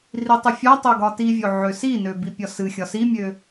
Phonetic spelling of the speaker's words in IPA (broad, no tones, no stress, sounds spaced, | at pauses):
r i tˤ ɨ fʲ ɒ tˤ o ɡ ɒ t i vʲ o ʕ ø s i n ø b i pʲ ɒ s ɨ xʲ ɒ s i mʲ ø